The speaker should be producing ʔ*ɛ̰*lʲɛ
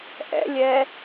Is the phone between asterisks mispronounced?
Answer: no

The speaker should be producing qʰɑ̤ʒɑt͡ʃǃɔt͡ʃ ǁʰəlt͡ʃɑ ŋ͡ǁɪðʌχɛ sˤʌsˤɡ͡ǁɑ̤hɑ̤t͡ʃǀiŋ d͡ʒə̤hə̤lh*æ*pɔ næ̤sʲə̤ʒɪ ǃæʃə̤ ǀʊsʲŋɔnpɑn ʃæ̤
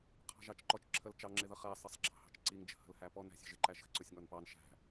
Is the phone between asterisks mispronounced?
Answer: no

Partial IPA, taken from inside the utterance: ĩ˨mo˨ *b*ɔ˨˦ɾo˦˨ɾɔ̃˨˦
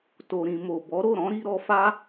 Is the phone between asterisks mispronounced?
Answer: no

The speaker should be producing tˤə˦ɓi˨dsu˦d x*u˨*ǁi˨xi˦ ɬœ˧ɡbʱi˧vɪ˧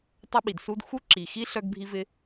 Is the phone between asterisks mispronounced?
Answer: yes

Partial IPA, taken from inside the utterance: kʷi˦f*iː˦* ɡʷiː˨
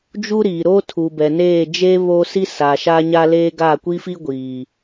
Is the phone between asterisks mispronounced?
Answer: yes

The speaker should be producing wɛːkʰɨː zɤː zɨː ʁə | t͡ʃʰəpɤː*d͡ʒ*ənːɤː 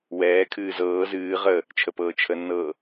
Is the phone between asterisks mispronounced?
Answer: yes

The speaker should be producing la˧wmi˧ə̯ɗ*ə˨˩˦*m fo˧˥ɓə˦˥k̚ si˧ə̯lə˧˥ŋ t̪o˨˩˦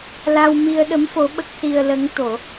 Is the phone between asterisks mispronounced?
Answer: yes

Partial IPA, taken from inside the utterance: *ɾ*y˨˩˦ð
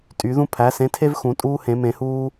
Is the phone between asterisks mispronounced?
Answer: yes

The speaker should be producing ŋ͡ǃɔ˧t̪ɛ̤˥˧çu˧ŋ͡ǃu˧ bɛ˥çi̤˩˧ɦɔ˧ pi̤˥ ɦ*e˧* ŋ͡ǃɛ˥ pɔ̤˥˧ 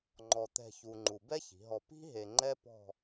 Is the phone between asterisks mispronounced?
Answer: no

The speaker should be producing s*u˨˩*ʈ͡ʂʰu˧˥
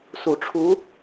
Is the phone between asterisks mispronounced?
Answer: no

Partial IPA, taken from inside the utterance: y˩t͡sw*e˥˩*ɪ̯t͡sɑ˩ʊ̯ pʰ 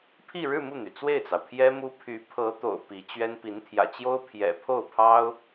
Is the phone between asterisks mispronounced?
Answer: no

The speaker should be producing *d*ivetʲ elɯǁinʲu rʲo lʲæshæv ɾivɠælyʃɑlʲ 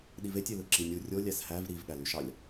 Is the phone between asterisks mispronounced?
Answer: yes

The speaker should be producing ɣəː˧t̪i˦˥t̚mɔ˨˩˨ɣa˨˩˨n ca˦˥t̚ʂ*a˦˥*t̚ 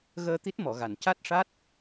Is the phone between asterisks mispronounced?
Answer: no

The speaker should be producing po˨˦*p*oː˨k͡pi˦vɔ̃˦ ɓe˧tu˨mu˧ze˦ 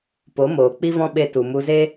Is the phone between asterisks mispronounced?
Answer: yes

